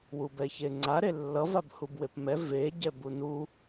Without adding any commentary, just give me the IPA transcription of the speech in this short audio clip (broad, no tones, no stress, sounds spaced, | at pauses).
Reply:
w u b ɛ ç e ŋ͡ǀ a ɾ e lː ʌ v a b h u b w e p m ɛ v e ɟ ɛ b u n u